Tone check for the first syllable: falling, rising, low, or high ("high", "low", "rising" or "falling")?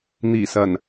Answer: low